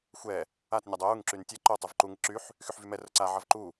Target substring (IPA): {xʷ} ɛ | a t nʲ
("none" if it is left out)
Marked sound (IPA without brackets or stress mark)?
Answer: xʷ